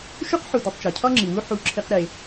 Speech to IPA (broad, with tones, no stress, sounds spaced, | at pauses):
ʃ u˦ q ħ u˨ d u˨ tˤ t͡ʃ ɒ˨ cʰ ɒ˦ ŋ͡ǁ i˨ w u˦ ħ u˦˨ ǁʰ i˦ q ɾ e˧